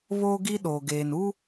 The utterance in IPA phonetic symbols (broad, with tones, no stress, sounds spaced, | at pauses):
β oː˦ ɡ i˦ ɗ oː˨ ɡ eː˨ n u˦